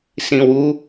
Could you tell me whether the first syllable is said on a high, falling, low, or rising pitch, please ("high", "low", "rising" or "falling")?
low